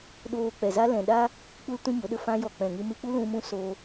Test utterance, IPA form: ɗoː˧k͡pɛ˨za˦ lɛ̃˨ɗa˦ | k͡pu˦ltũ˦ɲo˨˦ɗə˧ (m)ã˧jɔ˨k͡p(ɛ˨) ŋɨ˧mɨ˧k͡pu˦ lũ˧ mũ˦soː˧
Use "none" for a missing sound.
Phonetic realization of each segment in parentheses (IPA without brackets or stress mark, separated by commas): f, ɛ̃˨